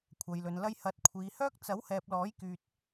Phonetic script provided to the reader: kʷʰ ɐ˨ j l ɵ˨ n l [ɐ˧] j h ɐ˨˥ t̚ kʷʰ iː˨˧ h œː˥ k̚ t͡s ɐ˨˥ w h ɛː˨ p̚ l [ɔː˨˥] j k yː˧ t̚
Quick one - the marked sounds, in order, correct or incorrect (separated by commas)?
correct, correct